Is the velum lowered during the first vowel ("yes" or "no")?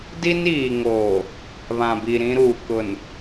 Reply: no